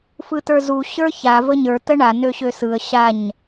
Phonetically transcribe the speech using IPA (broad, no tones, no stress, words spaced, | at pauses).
fɯtə˞zu ɕə˞ça vəɲə˞ təɳa nøɕøsɯə̯ ɕaɲ